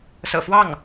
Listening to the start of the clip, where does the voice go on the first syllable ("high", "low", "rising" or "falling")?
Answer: low